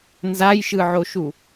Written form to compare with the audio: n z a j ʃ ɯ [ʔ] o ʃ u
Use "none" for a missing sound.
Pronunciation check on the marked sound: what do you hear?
ʕ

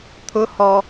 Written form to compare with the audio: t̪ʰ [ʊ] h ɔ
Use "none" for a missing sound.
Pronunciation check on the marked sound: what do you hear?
ʊ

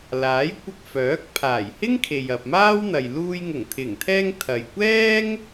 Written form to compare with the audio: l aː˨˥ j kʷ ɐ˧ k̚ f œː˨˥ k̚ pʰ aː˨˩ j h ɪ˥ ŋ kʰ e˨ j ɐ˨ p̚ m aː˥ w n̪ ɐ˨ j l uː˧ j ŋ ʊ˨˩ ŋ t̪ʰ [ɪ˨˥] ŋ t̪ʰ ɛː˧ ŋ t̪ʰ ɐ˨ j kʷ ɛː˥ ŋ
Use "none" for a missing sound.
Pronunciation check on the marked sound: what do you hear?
ɪ˨˩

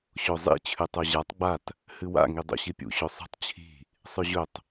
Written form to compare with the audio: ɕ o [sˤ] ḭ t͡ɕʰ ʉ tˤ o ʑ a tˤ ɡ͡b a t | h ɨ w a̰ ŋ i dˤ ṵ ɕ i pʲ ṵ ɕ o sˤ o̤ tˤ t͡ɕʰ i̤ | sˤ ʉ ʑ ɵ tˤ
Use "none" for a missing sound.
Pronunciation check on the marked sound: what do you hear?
zˤ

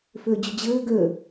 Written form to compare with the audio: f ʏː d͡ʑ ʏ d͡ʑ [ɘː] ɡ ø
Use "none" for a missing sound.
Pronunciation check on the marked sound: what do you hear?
ɘː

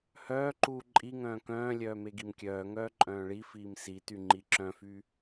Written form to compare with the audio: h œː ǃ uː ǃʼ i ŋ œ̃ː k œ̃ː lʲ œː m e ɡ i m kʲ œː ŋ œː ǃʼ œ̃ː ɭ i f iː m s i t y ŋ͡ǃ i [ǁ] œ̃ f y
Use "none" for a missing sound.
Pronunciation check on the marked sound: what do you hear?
ǁ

